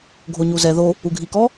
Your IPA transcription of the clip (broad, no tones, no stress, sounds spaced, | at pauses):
ɡʱ o ɲ u z ɛ ð o | u ɡʱ i k ɔ